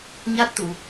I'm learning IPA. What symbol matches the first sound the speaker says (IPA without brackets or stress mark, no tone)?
ɲ